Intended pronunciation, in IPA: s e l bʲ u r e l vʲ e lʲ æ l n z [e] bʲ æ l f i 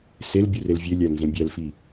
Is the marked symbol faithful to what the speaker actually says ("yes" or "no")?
no